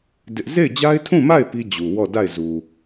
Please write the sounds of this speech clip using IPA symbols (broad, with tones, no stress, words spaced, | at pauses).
dɪ˦ʔ ze˦˨ɪ̯d͡ʑa˦ɪ̯tʰũ˦˨ma˦˨ɪ̯ pi˦ d͡ʑu˨wɔ˦˨ da˦˨ɪ̯zu˨